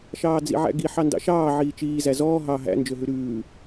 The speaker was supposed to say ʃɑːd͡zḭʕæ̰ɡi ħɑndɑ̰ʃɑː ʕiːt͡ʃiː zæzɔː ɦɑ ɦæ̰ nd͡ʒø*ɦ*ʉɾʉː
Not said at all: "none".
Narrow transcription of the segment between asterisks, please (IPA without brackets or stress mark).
ɦ